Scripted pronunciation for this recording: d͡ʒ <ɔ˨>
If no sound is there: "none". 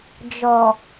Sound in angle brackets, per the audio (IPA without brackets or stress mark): ɔ˨